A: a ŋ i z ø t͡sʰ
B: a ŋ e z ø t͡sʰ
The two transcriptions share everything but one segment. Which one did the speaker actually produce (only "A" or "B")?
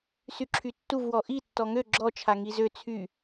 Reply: A